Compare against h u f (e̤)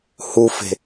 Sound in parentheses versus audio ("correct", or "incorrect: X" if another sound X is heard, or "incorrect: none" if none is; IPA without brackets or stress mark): correct